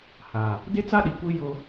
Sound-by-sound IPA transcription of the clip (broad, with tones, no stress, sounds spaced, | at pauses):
h a˨ | d e˦ t͡s a˦ ɗ i˨ kʷ i˦ j ʊ˦